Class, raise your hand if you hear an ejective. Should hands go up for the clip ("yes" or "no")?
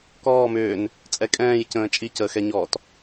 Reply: yes